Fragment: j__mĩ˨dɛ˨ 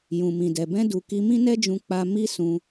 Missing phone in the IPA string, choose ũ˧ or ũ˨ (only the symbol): ũ˨